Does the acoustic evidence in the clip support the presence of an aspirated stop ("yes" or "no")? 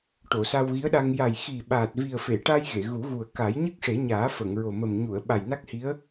no